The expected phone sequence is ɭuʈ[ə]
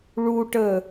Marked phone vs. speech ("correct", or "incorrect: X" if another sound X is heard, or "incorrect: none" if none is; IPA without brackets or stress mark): correct